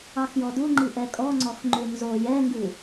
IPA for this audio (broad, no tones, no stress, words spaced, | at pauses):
ɑxjɔduŋ͡ǃi ʔɛkʼɔŋ͡ǀɔx ŋ͡ǃʉnzo jɛŋɡʉ